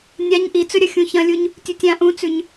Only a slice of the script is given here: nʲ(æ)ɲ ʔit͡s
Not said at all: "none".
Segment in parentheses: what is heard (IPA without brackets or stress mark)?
a